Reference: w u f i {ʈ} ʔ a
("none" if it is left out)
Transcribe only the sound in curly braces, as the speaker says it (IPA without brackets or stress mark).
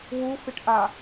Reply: ʈ